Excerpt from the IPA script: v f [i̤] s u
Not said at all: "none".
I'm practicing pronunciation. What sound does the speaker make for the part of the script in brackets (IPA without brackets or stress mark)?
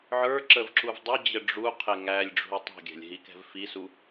i